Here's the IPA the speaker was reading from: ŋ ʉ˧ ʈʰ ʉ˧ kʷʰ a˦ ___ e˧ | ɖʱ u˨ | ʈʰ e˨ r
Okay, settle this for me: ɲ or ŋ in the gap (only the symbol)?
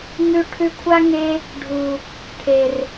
ŋ